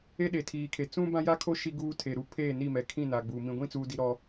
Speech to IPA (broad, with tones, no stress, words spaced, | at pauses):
e˦ɗe˨tʰiː˨kʰe˨ t͡sũ˦bã˦ja˦kʰo˦ ʃi˦ɡuː˦tʰe˨ɾu˦ pʰeː˦˨ni˦˨mɛ˨kʰĩ˦˨ na˨ɡ͡bu˨ mĩ˨ɡʷĩ˦t͡suː˨ di˨ɾɔ˨